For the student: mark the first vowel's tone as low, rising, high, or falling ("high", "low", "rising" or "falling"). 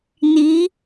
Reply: rising